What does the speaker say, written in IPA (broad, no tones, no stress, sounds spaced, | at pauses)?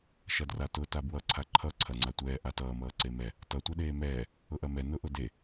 ʃ ɐ d r a t ʊ t a b w ʌ ǀʰ a ǃʰ ʌ ǀʰ ɐ ŋ͡ǀ a tʷ ɛː ʔ a t ʌː m ʌː ǀ e m ɛ | t ʌ tʷ ɛ ɗ eː m ɛː | ʊ ʔ ɐ m ɛ n ʊ ʔ ʊ d e